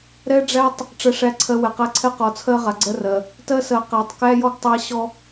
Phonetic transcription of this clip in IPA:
ɾ ɛ˦ ɖ͡ʐ æ˦ tˤ | ʈ͡ʂ ɜ˨ ʂ æ˨˦ ǀʰ ɜ˨ w ɛ˨ q æ˦ ǀʰ ɛ˦ q ɔ˨ t͡sʰ ɜ˦ ʁ a˨ ɡ͡ǀ ɜ˦ r ɜ˨ | t ɜ˦ s ɜ˨ q æ˨ tˤ k æ˦ j ɔ˦ ɡ tˤ æ˦ ɕ ɔ˦

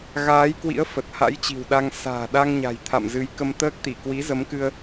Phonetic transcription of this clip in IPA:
ɣ aː˨˦ j k w ḭ˧˥ ə̯ f ə˨˩ t̚ h a̰˧˥ j t͡ɕ i̤˨˩ w ɗ a˧ ŋ s a̤ː˨˩ ɗ a˧ ŋ ɲ a̤˨˩ j t̪ʰ a̰˧˨ m z ɨ˨˦ j k ə˧ m t̪ əː˦˥ k̚ t̪ i˧˩ k w i˨˦ z ə˨˦ m k ɨ˧ ə̯

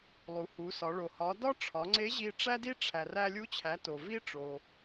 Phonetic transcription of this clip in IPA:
lˠ u˩˧ h u˩˧ s ɒ˩˧ ɭ o˩ h ɒ˩˧ d ɒ˥ ʈ͡ʂʰ ɒ˩˧ ŋ͡ǀ e˧˥ ʑ i˧ ʈ͡ʂ æ˥ d i˥ ʈ͡ʂʰ æ˩ r æ˧ lʲ u˧˥ t͡ɕʰ æ˩˧ t o˩ v i˥ ʈ͡ʂ o˩

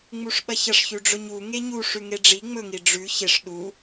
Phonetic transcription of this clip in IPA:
ŋ͡m u ʂ ɓ ɐ ç ɐ ʂ ç ʉ ɖ͡ʐ ɵ ɲ u ŋ e ɲ u ʂ ʉ ŋ e ɖ͡ʐ i ŋ͡m ɵ ŋ i ɖ͡ʐ ʉ ç e ʂ ɗ u

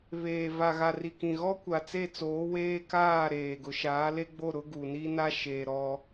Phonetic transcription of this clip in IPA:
β eː˨ v a˨ ɣ a˨ r i˨ k ĩ˨ ɣ ɔ˦ kʷ a˨ t͡s e˦˨ t͡s oː˨˦ w eː˦ k aː˦˨ ɾ eː˨ ɡ ʊ˨ ʃ aː˨˦ l e˦ ɡ͡b o˦˨ ɾ ʊ˦ ɡ u˨ n i˦ n a˦ ʃ e˨ ɾ ɔ˦

